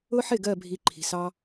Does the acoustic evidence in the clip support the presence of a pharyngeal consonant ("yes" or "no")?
yes